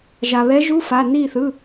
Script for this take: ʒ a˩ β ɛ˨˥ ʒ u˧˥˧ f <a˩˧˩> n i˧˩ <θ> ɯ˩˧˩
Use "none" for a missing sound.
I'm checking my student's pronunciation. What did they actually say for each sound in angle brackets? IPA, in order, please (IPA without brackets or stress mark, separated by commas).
a˩˧˩, θ